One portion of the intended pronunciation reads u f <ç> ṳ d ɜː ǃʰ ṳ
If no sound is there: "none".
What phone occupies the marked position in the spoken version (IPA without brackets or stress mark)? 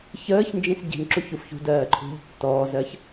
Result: ç